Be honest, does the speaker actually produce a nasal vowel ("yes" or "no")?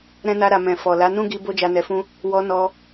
yes